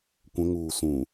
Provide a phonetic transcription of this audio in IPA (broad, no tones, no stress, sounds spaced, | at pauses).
kʷ ə̃ ŋ uː s ũ